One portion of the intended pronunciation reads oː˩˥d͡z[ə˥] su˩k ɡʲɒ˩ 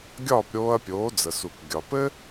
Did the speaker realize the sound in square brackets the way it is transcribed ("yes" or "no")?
no